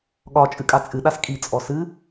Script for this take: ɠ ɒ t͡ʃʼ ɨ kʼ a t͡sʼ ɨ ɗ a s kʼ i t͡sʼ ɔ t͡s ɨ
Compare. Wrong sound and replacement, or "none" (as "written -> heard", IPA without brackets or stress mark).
t͡s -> s